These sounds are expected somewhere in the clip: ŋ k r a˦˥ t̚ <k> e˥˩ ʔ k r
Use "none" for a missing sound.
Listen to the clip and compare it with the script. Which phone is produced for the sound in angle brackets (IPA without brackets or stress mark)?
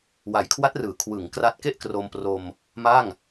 k